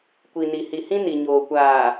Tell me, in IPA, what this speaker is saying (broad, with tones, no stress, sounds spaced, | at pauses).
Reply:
kʷ i˨ n i˨ h i˨ h ĩ˦ n i˨ ɲ oː˨ kʷ aː˨